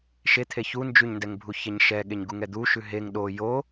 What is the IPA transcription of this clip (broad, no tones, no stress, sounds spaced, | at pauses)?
ʃ e t̪ʰ e ç u n d͡ʒ ʉ ɲ n d ɛ ŋ bʱ u ç ɛ ɲ ʃ ɛ ɠ e ɲ ɡ u ŋ ɛ d̪ u ʃ ʉ ɦ e ŋ ɗ o j o